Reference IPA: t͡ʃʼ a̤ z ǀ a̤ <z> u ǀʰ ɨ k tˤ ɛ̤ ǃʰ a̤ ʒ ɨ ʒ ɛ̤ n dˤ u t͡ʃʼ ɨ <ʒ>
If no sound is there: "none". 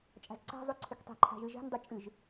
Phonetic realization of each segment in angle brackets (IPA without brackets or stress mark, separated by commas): zˤ, ʒ